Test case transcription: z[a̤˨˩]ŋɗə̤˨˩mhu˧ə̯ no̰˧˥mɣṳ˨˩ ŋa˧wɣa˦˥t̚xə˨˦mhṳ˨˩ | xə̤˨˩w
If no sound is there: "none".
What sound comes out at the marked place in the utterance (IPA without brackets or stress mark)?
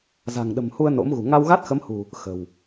a̤˨˩